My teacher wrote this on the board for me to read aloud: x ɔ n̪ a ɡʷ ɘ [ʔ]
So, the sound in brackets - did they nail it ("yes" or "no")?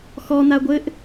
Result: yes